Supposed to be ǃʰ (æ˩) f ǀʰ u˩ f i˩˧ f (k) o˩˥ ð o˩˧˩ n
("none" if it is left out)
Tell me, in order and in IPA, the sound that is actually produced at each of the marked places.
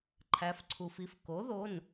æ˩˧, k

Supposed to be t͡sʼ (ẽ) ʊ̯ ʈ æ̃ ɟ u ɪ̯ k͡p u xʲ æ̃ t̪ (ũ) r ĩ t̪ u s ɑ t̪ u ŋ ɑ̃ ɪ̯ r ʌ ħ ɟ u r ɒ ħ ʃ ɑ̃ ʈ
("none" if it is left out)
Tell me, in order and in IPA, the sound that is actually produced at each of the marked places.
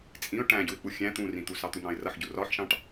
ĩ, ũ

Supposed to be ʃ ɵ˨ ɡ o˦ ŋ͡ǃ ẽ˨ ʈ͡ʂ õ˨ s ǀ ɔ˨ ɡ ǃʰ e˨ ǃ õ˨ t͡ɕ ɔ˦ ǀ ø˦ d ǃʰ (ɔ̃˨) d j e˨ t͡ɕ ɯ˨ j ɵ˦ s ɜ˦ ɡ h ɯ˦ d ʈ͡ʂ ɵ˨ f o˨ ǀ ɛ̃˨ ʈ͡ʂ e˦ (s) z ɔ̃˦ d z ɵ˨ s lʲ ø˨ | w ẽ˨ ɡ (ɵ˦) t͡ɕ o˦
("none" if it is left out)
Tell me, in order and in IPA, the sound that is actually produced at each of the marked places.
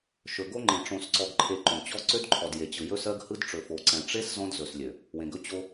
ɔ˨, s, ɵ˦

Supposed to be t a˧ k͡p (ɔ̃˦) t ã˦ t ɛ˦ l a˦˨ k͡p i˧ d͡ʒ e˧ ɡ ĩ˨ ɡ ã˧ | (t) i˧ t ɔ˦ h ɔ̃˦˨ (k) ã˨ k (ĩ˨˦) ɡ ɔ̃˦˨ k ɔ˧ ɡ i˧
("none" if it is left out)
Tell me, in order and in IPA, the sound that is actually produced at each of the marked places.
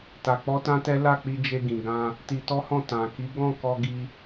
ɔ˦, t, t, i˨˦

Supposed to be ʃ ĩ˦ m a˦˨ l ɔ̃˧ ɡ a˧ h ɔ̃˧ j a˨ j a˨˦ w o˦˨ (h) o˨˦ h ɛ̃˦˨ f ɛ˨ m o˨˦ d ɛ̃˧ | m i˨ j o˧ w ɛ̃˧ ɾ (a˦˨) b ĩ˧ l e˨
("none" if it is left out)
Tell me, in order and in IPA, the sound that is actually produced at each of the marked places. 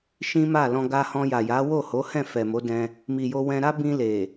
h, a˦

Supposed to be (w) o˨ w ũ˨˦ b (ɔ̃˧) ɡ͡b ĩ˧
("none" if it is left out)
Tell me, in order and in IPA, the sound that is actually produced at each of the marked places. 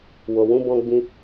w, ɔ̃˧

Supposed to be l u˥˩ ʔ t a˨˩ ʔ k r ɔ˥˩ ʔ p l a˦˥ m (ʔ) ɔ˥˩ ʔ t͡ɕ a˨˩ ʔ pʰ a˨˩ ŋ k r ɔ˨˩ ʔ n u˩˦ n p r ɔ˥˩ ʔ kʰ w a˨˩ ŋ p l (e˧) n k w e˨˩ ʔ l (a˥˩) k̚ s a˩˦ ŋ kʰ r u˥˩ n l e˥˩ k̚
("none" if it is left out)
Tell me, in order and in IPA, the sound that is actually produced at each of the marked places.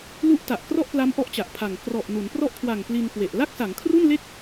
ʔ, i˧, a˥˩

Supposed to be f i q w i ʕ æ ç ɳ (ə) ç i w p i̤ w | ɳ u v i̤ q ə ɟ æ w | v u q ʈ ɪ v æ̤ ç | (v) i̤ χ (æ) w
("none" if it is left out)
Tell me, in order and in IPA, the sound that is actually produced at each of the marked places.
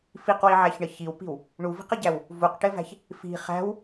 ə, f, æ̤

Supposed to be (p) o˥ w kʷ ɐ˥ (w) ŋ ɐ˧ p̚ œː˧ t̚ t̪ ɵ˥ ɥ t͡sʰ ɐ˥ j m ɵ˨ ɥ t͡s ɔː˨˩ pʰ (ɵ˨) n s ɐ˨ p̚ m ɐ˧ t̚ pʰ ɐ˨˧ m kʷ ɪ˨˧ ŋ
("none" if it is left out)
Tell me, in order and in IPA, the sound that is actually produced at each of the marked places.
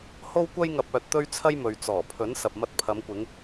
h, j, ɵ˨˥

